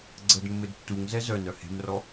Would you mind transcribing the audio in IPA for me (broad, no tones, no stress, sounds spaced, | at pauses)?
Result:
ɡ͡ǀ ə d mː ɘ d tː u ŋ z ɛ z œ n œ h e̤ m r ɔ